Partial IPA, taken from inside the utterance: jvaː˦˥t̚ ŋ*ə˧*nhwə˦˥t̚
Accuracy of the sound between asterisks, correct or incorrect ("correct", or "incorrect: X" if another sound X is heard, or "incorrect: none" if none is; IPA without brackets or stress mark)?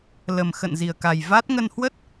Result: correct